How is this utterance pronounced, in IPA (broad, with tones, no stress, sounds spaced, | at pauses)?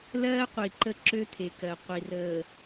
l ɜː˦ qʷ i˨ ǃ ə˦˨ ǁ ø˦ t̪ʰ e˨ k ɜ˨ qʷ i˨ r əː˨